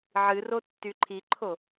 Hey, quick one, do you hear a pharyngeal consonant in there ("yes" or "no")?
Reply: yes